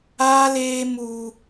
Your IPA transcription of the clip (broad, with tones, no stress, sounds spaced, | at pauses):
aː˦ l eː˦ m u˦